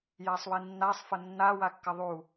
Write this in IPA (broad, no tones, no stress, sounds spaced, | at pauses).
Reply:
j a sˤ w i nː a sˤ f ɐ nː a w a kː ɐ ðˤ u